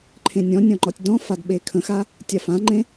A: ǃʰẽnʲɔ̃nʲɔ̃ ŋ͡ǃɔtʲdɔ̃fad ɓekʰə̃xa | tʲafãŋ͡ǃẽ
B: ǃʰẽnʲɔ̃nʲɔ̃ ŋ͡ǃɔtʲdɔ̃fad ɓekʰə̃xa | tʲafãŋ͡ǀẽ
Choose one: A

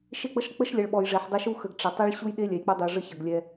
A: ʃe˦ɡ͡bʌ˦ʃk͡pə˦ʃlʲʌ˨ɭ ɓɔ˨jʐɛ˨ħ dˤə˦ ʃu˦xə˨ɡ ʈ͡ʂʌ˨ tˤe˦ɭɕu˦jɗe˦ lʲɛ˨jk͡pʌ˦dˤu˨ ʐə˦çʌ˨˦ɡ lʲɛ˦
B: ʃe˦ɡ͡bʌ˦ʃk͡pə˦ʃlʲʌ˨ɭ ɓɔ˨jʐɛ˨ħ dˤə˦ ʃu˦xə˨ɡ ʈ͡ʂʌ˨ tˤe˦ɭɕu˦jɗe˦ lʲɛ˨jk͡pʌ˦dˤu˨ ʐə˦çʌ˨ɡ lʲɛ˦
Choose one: B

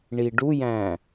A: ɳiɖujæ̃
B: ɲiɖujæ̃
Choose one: A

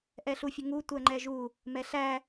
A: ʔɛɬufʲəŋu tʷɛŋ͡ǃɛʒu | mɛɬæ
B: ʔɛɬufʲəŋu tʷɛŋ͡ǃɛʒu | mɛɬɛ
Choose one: A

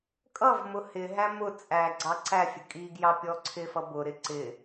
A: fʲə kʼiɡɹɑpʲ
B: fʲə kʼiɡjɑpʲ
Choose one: B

